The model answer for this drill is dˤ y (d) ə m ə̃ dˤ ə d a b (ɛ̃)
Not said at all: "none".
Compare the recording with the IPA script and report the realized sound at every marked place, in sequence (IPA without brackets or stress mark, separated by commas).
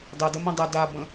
d, ə̃